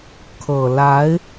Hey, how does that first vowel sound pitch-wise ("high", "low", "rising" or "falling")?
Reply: low